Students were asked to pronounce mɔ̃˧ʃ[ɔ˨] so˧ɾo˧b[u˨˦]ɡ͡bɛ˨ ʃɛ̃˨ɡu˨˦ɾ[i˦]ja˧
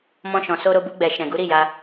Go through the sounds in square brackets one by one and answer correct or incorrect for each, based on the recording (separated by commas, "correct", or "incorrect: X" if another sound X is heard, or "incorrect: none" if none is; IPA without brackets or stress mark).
incorrect: ɔ̃˨, incorrect: u˧, incorrect: i˦˨